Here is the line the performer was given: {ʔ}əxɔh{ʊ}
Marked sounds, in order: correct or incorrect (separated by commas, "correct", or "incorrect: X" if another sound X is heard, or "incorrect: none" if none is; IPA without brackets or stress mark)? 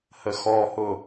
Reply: incorrect: h, correct